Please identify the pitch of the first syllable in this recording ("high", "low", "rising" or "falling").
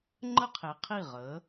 falling